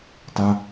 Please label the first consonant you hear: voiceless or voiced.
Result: voiceless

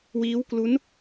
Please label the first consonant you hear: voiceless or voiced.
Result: voiced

